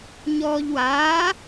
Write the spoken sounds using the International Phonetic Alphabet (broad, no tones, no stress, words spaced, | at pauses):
ɲɔːʎwaː